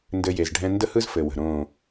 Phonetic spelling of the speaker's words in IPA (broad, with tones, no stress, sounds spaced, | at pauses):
n d ɘ˧ j e˨ z ɖʱ ɛ̃˦ n d ə˦ h ɯ˦ z f ɘ˨ w ə̤˨ ɾ õː˦˨